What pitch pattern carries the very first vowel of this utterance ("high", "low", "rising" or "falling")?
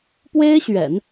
high